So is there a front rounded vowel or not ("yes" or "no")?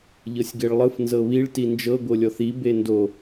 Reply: no